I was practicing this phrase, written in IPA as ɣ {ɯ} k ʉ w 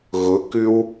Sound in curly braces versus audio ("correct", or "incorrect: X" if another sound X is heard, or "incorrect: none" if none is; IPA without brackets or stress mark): incorrect: ʊ